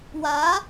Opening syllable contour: rising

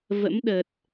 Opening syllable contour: rising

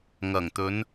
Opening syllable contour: low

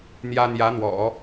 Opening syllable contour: high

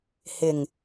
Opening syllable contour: low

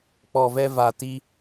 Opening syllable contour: low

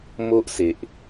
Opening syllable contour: high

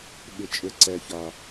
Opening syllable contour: low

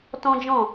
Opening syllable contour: high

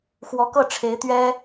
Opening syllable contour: rising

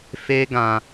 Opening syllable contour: high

